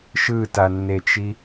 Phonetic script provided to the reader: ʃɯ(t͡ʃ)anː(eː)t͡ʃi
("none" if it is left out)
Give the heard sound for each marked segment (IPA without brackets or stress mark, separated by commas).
t, e